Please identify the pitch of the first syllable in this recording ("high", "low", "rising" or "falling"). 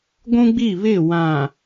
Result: high